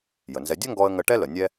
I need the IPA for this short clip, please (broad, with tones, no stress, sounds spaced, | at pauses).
j ə˩ n z ɛ˧ dʲ œ˥ ŋ ɡ ɔ˧ ə̯ ŋ ə˧ ʈ ɛ˥ l ə˩ nʲ ɛ˥